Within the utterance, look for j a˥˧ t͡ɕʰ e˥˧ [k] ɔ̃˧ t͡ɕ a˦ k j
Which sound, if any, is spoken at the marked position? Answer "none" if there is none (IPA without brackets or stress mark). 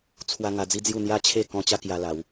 k